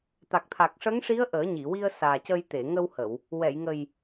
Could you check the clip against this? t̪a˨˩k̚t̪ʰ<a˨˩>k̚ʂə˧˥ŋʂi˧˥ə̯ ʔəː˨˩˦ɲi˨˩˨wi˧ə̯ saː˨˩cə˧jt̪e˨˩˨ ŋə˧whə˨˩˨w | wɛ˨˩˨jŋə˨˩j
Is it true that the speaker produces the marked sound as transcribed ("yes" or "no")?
yes